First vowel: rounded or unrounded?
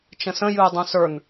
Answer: unrounded